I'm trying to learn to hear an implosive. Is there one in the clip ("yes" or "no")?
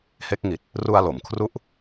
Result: no